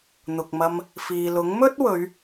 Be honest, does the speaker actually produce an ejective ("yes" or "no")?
no